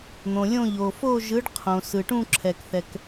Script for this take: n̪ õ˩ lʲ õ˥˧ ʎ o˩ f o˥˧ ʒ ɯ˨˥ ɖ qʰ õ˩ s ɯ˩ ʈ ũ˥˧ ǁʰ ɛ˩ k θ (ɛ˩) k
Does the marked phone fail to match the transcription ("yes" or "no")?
no